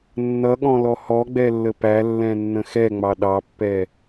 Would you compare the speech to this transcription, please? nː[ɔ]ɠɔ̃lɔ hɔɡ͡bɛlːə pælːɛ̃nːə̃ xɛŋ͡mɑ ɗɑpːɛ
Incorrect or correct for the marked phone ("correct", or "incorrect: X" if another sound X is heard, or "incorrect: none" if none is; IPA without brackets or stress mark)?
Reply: incorrect: ʌ